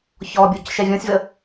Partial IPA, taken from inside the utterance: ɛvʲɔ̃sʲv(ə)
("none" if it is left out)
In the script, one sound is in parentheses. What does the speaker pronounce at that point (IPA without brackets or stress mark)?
ə